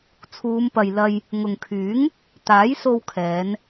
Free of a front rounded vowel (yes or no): no